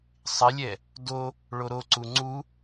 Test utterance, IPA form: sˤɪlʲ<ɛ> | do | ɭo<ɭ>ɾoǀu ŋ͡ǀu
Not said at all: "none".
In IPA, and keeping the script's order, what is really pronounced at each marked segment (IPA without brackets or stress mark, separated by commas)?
ɛ, none